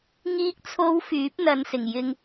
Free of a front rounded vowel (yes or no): no